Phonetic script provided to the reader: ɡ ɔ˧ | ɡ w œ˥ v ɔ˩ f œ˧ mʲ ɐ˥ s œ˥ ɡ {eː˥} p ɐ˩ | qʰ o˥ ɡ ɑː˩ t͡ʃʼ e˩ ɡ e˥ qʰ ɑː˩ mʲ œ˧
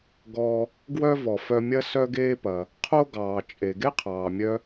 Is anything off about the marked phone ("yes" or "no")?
no